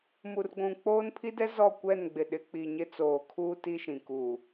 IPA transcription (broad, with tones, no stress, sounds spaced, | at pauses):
m u˨ r ɡʷ ũ˨ k͡p oː˦ n pʰ i˦ d ɛ˦ z ɔ˦˨ kʷ ɛ˦˨ n ɡ͡b ɪ˨ ɗ ɪ˨˦ k͡p i˨ ɲ ɪ˦ t͡s oː˨ kʰ uː˦ t i˦ ʃ ĩ˨ k uː˨